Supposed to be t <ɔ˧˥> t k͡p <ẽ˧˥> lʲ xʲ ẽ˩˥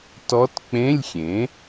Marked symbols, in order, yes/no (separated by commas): yes, no